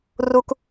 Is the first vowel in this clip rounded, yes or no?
yes